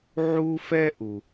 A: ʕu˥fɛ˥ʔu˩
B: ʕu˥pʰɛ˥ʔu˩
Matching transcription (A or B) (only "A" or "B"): A